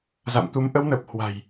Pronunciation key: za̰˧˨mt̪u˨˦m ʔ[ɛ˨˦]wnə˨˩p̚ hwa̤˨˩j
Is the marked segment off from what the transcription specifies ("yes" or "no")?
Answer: yes